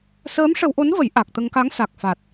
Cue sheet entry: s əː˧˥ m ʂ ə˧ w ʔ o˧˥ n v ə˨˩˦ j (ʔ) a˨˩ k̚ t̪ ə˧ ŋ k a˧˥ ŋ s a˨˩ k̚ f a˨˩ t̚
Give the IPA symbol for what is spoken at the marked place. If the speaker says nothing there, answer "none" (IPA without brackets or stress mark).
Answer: ʔ